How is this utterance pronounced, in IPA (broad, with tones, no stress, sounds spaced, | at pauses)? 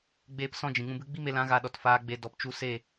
ɡ͡b eː˦ p s ɔ̃˦ d͡ʒ ĩ˨ ŋ ũ˧ b ɨ˦ ɡ͡b i˦ m e˧ l ã˨˦ ɣ a˧ ɗ ɔ˨ t f aː˧ ɡ͡b e˨ d ɔ˨ p t͡ʃ u˧ s e˦˨